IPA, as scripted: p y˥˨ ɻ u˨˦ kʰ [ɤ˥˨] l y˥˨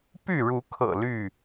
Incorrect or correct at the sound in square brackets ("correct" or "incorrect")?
incorrect